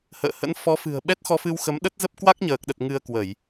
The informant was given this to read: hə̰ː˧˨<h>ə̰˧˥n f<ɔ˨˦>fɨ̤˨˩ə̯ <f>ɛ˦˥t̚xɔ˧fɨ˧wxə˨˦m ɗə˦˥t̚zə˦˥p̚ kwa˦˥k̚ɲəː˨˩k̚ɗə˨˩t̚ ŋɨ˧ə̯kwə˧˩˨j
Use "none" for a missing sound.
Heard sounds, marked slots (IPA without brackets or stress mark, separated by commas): h, ɔ˨˦, ɓ